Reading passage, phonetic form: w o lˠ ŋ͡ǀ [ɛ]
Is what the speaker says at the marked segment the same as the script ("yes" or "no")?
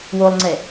yes